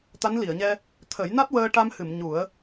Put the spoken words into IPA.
t̪a˧˥nli˨˩˨ə̯ɲɛ˧ | t̪ʰə˨˩˦j na˦˥t̚ wəː˧ ʈa˧mhɨ˨˩˨m ɲu˨˩˦ə̯

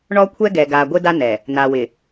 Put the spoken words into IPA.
ɳɔ˦kʷʰɛ˦ ɡɛ˨ɡa˨ ɡʷɪ˦ da˦nɛ˨ | na˨wɪ˨

